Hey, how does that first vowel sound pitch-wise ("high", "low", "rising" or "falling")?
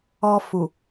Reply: low